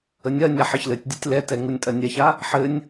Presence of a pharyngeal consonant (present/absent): present